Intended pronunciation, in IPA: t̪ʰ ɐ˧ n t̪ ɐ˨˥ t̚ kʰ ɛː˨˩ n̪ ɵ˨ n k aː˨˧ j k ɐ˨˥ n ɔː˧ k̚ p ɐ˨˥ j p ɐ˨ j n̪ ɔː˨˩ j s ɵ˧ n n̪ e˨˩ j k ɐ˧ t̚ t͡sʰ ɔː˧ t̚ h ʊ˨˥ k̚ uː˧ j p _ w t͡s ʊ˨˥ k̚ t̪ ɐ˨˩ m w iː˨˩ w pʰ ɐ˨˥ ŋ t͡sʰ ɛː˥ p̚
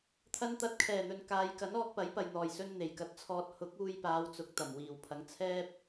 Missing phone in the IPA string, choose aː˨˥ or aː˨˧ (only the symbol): aː˨˧